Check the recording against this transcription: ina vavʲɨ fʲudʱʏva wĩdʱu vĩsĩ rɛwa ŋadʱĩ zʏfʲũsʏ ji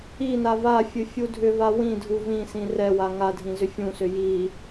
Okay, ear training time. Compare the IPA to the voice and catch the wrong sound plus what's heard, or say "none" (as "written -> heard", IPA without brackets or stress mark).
vʲ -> fʲ